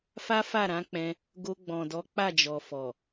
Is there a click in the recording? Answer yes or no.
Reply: no